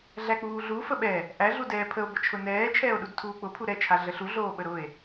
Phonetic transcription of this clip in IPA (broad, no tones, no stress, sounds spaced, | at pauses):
ɮ æ k͡p uː ɮ u f ə ɓ ɛ | ʔ æ ɮ u d ɛː pʰ ə o̯ b ə t͡ʃʰ ʊ n ɛː t͡ʃʰ ɛː o̯ ɗ u d tʰ uː k͡p ʊ pʰ u ɾ ɛ t͡ʃʰ a ɮ ə ɬ u ɮ oː ɓ ə ɾ ʊ e̯